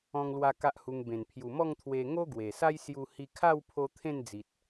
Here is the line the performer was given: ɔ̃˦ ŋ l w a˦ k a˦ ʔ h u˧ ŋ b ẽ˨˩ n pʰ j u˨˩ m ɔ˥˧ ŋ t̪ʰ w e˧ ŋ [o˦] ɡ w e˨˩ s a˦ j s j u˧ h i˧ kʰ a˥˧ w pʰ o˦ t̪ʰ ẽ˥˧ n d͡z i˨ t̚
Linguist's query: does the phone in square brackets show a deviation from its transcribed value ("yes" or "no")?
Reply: no